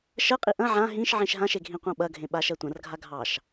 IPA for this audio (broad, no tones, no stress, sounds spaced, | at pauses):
ʃ ɜ qʼ i ʔ ɐ̃ ʕ ã ɦ ĩ ʃ ʕ ĩ ʃ ɦ ã ʃ e ɡʱ ĩ qʷ ɑ̃ ɓ ɐ ɡʱ ẽ ɓ a ʃ ɜ tʷ ɐ̃ r ɡʱ a ɡʱ ɑ ʃ